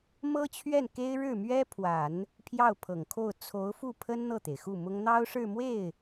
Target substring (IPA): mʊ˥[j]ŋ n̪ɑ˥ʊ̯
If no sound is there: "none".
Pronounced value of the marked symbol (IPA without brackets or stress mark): none